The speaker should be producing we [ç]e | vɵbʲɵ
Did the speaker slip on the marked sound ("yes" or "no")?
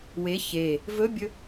no